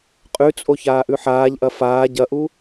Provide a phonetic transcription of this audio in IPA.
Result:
qʼ ʉ t͡sʼ o ç aː ʔ ʉ ħ aː ʎ ʔ ɐ f aː ɟ ɐ ʔ u

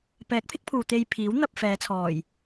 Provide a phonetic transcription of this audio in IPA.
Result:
p ɛː˨˥ k̚ pʰ ɪ˨˥ k̚ pʰ uː˨ t̪ e˧ j pʰ iː˨˥ w n̪ ɐ˧ p̚ f ɛː˨˧ t͡sʰ ɔː˨˩ j

